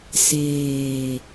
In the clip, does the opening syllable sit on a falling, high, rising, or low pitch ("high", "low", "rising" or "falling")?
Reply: low